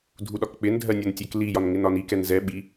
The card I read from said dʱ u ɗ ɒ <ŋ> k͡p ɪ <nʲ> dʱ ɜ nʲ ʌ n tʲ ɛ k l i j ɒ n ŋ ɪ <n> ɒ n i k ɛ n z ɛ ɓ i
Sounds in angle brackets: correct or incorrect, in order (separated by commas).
incorrect, incorrect, correct